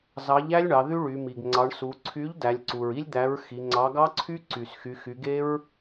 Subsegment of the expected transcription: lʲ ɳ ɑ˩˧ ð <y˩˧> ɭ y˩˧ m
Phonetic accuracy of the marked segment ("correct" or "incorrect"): incorrect